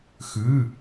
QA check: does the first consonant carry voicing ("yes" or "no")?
no